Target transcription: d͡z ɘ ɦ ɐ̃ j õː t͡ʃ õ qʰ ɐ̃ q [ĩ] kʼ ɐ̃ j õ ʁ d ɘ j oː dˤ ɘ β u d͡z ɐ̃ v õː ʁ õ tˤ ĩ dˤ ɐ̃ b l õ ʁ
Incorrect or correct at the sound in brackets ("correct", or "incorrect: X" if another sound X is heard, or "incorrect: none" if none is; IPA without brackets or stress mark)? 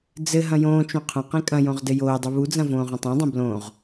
correct